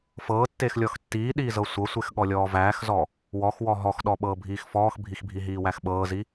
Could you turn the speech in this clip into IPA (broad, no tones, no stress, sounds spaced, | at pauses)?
f ɤː tː eː x lʲ ɔ x tː iː ɗ iː z ɤ sʷ ɤ sʷ e x ɠ ɔ lʲ ɔː v æː x z ɔ | w ɔ x w ɔ ɦ ɔ x ɗ ɔ ɓ ɤː bʱ iː x f ɔː x bʱ i x bʱ i ɦ iː w æ x ɓ ɤː z i